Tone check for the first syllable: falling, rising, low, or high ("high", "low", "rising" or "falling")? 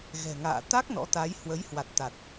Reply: low